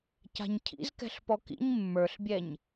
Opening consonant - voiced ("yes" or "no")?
no